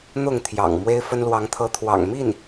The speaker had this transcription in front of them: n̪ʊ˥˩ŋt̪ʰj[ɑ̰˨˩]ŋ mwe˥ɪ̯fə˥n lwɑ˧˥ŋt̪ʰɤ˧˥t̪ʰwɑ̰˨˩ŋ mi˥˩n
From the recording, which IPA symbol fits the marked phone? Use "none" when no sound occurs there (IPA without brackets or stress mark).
ɑ̰˨˩